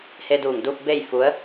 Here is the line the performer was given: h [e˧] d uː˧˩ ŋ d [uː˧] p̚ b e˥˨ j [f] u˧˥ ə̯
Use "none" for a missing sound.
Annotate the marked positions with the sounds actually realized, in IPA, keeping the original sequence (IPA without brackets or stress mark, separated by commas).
e˧, uː˧, f